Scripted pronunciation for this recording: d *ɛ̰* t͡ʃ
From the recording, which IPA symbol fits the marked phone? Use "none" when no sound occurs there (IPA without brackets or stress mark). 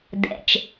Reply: ɛ̰